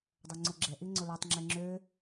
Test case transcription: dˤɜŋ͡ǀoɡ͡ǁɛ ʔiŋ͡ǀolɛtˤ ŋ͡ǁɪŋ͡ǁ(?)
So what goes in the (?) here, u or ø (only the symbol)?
ø